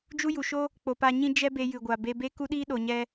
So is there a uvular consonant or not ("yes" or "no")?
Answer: no